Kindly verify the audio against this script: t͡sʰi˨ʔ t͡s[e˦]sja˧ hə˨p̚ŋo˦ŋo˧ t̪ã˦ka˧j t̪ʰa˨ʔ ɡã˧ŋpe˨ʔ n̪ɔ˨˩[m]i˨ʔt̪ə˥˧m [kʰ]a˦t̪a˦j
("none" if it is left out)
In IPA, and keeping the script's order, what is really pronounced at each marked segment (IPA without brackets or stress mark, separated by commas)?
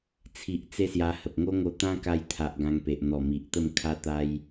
e˦, m, kʰ